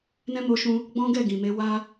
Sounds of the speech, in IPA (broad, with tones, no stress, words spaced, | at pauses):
nɛ̃˦mo˧ʃũ˧ | ɡ͡bɔ̃˦ɡɛ˦˨ ɡĩ˨me˧ wa˦